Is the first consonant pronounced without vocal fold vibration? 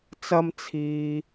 yes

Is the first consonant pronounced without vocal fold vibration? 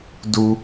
no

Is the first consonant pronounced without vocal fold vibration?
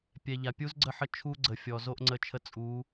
yes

